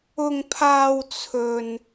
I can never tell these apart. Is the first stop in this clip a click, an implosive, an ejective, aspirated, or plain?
aspirated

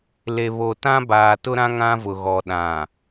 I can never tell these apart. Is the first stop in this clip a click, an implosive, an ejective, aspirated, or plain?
plain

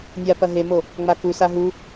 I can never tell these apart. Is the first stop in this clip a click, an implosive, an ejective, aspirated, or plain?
plain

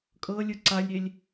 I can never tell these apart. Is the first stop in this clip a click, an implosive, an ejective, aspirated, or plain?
ejective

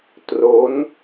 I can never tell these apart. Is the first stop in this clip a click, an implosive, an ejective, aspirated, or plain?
plain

